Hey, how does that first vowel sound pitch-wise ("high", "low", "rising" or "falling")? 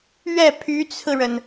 falling